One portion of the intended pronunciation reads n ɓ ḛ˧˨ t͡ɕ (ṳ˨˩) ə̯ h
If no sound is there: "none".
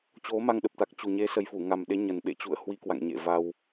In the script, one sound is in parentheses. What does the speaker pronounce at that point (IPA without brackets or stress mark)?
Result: ṵ˧˨